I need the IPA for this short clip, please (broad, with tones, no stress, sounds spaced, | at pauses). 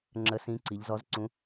ŋ͡ǁ ə˧˥ s ĩ˧˥ ǀ i˩˧ ʎ z ɔ˧˥ z ǀ ũ˧˥